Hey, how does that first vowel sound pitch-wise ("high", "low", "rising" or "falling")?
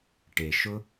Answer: low